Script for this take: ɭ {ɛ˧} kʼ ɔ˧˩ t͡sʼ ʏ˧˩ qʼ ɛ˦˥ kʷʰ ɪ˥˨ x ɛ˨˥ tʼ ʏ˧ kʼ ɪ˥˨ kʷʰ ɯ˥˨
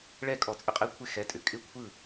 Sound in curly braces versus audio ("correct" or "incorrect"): incorrect